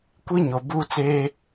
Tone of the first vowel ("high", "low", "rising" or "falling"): high